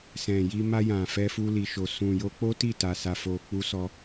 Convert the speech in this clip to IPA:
s ɛ̃˨ j i˧ m a˧ j ã˨ f ɛ˧ f u˧ l i˨ ʃ o˨ s ũ˨ j o˧ k͡p o˦ t i˦˨ t a˨ s a˨ f o˨ k͡p u˧ s ɔ˧

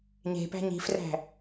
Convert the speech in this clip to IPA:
ɲ e̤ p æ̤ ɲ i̤ f r æ̤

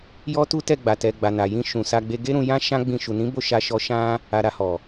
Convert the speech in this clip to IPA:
j ɔ˦ t u˦ t ɛ˦˨ ɡ͡b a˨ t ɛ˨ ɡ͡b a˨ n a˨ j ĩ˧ ʃ ũ˨ s a˧ ɡ͡b e˧ ɡ e˦ ɾ ũ˧ j ã˦ ʃ ã˦ ɡ͡b ĩ˧ ʃ u˨ n ĩ˨˦ b o˦˨ ʃ a˧ ʃ ɔ˧ ʃ ã˧ | a˨ ɾ a˨ h ɔ˨

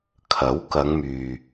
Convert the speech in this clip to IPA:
kʰ ɐ˨˥ w k ɐ˨˧ ŋ m yː˨

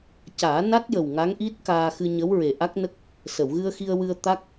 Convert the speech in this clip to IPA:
c aː˨˩˦ n a˦˥ t̚ j ə˨˩ w ŋ a˧˥ ŋ ʔ i˦˥ t̚ k aː˧ x ɨ˧ ɲ ə˧˥ w ɹ e˨˩ ʔ a˦˥ k̚ n ə˦˥ k̚ | s ə˨˩˨ w ɣ ɨ˧ ə̯ x i˧ ə̯ w ɨ˧ ə̯ t̪ a˦˥ k̚

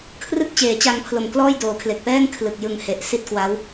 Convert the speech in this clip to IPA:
kʰ r ɯ˥˩ k̚ t͡ɕ eː˩˦ t͡ɕ a˧ ŋ pʰ l o˨˩ m k l ɔː˥˩ j d oː˩˦ kʰ l e˨˩ k̚ p ɛː˥˩ ŋ kʰ l ɯ˨˩ k̚ j ɯ˨˩ ŋ h e˨˩ ʔ s i˥˩ t̚ k w a˦˥ w

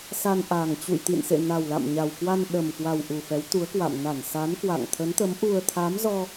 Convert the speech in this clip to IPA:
s a˧ n ʔ a˨˩ ŋ t͡ɕ ṵ˧˨ j t̪ ḭ˧˨ n s ḛ˧˨ n a˨˩ w l a̰˧˨ m ɲ a˨˩ w k w a˧ n ɗ ə˨˩ m k w a˨˩ w ʔ u˨˩ f ɛ˨˦ w t̪ u˨˦ ə̯ k w a̰˧˨ m n a˧˩ n s a˨˦ n k w a̰˧˨ ŋ t̪ʰ ə˨˦ n t̪ ə˨˦ m ʔ u˧ ə̯ t̪ʰ a˨˦ m z ɔ˧

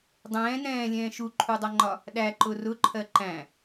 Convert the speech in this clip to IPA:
dˤ ɛ̃ː n ɛ̃ː lʲ ɛ̃ː ʃ u ǃʰ u dˤ ʌ ŋ͡ǃ ɒ | ɗ æ ǃ ʊ r ʊ ǃʰ ɜ ǃ æ̃

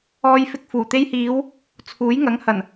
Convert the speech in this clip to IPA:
ɔː˧ j f ɪ˧ k̚ f uː˨˩ t̪ e˧ j h iː˨˧ w | t͡sʰ uː˨˥ j ŋ ɐ˨˥ ŋ h ɐ˨˩ n

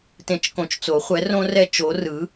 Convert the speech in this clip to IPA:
t ẽ˨ t͡ʃ k õ˨ t͡ʃ t͡s o˨˩˦ χʷ ɛ˨˥ r õ˦ r ɛ˦ t͡ʃ o˨˥ r ɯ˨˥

